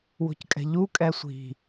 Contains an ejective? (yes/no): yes